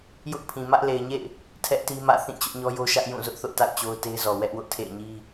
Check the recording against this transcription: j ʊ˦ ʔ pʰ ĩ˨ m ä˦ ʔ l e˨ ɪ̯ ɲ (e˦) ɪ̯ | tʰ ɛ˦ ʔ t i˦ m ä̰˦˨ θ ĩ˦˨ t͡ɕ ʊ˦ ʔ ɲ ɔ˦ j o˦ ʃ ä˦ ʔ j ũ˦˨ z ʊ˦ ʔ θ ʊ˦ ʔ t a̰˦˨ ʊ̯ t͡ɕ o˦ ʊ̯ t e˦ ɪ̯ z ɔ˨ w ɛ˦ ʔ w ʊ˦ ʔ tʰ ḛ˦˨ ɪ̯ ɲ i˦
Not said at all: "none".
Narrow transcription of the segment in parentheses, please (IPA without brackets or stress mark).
ḛ˦˨